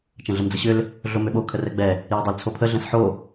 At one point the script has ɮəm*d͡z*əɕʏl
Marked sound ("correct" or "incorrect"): correct